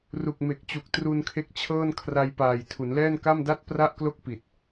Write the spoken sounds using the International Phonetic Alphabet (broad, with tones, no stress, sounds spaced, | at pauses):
r u˨˩ k̚ m e˨˩ k̚ t͡ɕ u˨˩ k̚ t r u˧ n kʰ e˦˥ k̚ t͡ɕʰ ɤː˥˩ n kʰ r a˧ j p aː˨˩ j tʰ u˩˦ n l ɛː˥˩ n k a˥˩ m d a˥˩ t̚ p r a˥˩ ʔ k l o˥˩ k̚ p i˨˩ t̚